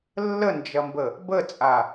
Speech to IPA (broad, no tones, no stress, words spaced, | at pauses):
lːənd͡ʒɐmbə | bət͡sʼa